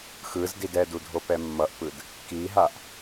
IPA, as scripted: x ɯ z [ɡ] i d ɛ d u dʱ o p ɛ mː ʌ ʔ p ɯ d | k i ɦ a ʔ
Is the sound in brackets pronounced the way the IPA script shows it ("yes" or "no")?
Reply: no